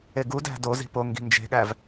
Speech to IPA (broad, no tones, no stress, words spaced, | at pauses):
eɡudæ̤ do zi̤po ŋɡi̤nd͡ʒe̤ɠæv